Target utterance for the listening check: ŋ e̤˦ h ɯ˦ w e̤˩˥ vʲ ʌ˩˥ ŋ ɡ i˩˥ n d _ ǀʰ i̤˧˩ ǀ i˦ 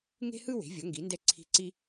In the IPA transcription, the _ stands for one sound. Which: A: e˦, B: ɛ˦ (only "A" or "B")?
B